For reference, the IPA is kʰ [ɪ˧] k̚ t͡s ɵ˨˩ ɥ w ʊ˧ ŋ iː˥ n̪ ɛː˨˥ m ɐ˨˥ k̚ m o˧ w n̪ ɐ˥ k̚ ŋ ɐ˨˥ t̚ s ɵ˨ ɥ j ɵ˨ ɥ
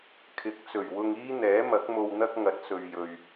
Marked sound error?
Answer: yes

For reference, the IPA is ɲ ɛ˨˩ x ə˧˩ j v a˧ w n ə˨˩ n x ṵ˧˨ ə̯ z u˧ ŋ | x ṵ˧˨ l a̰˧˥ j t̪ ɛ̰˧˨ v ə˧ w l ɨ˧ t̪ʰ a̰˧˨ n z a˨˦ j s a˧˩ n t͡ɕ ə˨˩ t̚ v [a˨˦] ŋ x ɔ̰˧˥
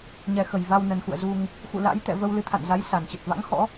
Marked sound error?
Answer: yes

